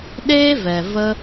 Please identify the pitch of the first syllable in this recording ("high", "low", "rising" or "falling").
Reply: high